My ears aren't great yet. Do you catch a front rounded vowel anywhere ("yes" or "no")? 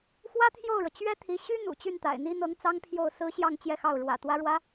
yes